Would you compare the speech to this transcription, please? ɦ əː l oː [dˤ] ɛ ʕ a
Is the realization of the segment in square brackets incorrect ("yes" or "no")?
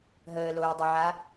no